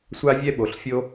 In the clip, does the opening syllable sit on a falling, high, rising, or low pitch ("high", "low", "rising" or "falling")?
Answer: high